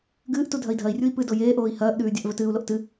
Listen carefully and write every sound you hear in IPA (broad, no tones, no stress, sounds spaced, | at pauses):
ɡ ɨː ʔ t u dʱ ɐ i̯ dʱ ɐ i̯ rʲ u i̯ p ɨ d o j eː ʔ oː i̯ h ɐː ʔ ɗ ʉː dʲ a ʔ v ɵ t ɨː u̯ l o ʔ t ɨ